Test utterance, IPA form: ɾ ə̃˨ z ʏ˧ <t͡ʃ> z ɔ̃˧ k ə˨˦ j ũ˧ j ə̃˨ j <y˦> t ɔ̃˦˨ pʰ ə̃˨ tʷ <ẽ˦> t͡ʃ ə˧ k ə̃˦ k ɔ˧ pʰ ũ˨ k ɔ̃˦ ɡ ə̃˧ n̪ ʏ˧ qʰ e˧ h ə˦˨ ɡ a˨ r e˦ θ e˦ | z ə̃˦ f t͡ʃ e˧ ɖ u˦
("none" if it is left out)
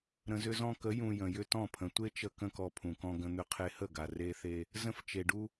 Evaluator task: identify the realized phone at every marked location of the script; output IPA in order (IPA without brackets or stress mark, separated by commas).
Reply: none, ʏ˦, e˦